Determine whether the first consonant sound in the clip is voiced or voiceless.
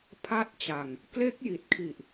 voiceless